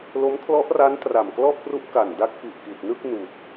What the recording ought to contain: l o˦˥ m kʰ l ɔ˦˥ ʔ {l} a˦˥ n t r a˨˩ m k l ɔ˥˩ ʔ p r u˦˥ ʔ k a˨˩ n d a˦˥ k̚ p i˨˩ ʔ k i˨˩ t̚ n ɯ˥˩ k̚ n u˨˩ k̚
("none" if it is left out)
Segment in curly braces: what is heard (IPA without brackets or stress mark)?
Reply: r